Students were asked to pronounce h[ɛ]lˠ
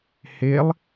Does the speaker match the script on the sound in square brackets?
no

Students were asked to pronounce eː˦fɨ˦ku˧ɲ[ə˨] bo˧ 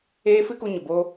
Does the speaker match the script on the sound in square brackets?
yes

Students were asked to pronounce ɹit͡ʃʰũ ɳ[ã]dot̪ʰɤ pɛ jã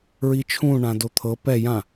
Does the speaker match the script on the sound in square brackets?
yes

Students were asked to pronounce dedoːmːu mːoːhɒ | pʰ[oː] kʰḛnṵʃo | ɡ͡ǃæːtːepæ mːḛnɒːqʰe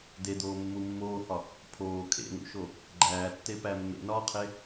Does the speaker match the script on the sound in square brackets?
yes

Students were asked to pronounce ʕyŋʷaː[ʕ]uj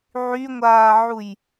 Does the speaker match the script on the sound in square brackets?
yes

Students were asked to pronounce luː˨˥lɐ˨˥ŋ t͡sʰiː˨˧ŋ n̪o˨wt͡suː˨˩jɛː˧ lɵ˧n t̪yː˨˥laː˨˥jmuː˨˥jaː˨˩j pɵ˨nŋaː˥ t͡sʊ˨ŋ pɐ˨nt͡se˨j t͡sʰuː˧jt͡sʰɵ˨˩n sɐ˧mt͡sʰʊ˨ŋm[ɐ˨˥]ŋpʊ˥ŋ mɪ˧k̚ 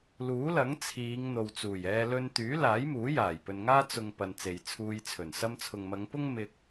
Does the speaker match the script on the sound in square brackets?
no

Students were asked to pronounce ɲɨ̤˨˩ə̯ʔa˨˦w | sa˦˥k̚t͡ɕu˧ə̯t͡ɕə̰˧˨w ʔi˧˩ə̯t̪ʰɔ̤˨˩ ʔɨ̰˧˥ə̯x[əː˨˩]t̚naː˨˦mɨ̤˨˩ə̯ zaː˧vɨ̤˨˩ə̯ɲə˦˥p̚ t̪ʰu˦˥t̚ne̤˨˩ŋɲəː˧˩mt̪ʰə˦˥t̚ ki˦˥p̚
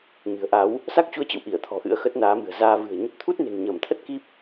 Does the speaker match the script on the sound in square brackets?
no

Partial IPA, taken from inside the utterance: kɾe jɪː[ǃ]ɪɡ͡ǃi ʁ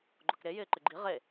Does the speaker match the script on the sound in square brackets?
yes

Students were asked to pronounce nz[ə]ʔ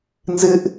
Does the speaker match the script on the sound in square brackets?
no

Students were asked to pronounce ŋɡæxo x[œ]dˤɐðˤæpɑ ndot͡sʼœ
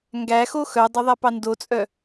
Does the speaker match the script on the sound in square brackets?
yes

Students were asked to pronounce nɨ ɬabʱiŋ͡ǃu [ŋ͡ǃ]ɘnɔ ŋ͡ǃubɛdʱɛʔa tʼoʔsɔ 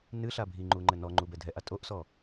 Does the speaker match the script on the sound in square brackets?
yes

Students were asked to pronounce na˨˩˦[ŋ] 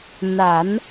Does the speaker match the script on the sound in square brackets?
no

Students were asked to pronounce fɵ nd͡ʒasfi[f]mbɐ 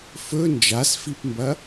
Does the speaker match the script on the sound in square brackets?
no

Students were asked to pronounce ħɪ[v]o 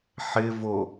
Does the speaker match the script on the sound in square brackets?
yes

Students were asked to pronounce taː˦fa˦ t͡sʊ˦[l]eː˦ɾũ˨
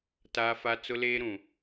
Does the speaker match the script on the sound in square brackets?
yes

